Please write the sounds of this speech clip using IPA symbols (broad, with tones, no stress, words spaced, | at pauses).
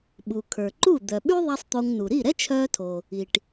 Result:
ɓu˩ kʰə˞˩ǃu˥˩ d̪œ˩ ɓy˥ðˤɛ˧sˤ t̪o˧ŋnu˩ ɾi˥˩ɾɛ˥t͡ʃʰœː˧tʰo˩ | i˩ʈ